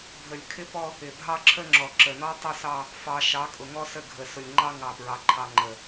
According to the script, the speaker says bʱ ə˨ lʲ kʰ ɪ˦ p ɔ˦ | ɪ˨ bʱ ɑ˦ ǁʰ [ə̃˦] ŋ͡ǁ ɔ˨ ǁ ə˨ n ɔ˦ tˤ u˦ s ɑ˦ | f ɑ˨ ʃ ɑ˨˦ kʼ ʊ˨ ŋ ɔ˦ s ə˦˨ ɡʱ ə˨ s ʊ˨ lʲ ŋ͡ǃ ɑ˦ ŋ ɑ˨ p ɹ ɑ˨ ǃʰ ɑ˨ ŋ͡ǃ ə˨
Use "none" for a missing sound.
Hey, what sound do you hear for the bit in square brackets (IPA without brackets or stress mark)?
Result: ə˦